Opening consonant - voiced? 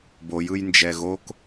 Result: yes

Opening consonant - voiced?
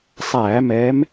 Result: no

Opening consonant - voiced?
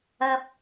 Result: no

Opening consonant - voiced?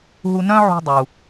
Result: yes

